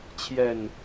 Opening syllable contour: low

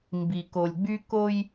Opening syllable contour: low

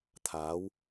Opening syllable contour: rising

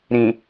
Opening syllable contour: low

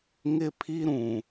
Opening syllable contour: high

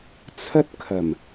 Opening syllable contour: high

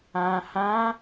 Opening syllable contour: low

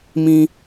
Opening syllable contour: high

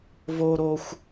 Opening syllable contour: high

